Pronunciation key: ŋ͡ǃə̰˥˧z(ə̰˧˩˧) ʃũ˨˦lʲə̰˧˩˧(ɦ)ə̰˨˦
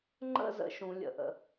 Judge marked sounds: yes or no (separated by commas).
yes, no